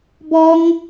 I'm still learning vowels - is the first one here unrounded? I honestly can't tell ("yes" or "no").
no